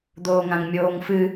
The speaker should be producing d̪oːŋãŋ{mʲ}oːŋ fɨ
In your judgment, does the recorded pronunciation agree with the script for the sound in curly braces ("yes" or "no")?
yes